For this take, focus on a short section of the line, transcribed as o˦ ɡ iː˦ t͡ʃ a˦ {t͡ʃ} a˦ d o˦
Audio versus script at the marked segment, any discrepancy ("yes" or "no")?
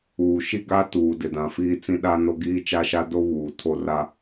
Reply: yes